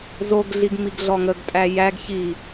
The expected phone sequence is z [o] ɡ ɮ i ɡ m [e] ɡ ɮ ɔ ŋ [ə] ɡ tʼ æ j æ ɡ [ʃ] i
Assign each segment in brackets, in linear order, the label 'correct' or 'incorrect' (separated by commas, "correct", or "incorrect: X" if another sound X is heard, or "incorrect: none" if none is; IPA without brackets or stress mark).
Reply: correct, incorrect: i, correct, incorrect: ç